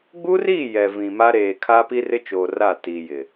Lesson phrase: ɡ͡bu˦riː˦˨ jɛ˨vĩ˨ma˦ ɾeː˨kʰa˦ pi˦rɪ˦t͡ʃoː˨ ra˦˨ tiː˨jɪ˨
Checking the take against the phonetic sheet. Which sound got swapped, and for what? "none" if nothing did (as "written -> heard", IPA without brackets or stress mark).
none